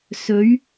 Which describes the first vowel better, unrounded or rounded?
rounded